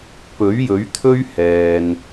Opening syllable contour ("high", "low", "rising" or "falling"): rising